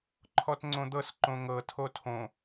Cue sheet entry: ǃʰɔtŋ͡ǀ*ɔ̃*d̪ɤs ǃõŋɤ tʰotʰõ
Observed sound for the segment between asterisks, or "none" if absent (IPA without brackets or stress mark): õ